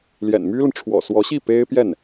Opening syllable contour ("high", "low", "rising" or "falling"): low